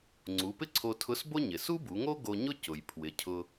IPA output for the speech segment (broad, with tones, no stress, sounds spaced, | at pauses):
ŋ͡ǀ u˩˧ p ɪ˥ ǀʰ o˧ tʰ ʊ˧˥ s b o˥ ɲ ɪ˩ s u˥ b u˩˧ ŋ o˥ ɡ o˧ ɲ ʊ˥ c ʊ˩ j pʰ w ɪ˩ cʰ ʊ˧